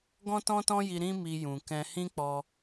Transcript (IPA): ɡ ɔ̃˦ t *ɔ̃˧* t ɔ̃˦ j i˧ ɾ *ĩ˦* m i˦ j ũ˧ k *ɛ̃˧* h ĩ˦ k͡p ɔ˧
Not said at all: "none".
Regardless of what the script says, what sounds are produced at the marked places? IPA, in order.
ɔ̃˦, ĩ˦, ɛ̃˧

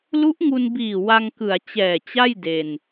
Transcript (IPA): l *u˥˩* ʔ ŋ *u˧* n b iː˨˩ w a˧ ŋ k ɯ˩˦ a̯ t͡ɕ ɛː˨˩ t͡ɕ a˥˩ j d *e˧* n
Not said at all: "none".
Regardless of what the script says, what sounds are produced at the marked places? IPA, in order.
u˦˥, u˧, e˧

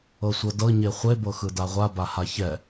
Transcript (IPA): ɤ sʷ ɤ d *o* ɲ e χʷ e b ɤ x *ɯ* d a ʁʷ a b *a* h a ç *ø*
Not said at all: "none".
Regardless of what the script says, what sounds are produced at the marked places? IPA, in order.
ɤ, ɯ, a, ɛ

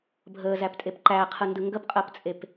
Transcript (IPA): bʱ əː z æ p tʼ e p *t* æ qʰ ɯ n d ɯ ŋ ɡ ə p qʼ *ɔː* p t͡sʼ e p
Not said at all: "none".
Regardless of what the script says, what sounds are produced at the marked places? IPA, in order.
ǃ, əː

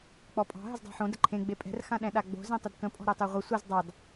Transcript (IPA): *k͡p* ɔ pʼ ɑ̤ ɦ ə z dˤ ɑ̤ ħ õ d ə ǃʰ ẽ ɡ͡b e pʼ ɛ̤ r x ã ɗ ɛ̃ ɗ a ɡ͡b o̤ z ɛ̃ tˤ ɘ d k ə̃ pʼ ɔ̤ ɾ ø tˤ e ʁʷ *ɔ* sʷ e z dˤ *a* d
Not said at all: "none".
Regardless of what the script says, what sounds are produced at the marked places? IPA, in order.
k͡p, ə, ɑ

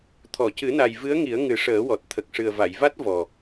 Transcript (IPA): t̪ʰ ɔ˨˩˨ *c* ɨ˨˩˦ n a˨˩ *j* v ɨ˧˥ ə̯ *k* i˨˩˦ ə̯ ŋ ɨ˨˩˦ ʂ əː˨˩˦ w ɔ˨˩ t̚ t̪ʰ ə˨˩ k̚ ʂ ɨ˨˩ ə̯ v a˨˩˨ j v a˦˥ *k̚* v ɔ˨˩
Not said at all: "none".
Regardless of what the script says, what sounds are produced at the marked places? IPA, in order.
c, j, ŋ, t̚

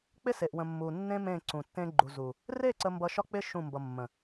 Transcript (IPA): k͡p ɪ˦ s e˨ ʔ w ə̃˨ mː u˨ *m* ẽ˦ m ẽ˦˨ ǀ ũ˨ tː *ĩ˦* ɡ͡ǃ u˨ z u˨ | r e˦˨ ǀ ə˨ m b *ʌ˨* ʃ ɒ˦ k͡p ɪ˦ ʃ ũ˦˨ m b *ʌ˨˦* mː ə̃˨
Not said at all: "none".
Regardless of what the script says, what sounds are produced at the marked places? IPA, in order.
nː, ẽ˦, ʌ˨, ʌ˨

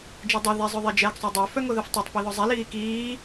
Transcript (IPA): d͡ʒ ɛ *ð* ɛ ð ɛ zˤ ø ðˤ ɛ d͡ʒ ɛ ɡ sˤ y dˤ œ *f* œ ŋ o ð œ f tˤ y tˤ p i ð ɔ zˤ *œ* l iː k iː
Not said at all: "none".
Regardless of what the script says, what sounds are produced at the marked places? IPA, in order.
dˤ, f, ɛ

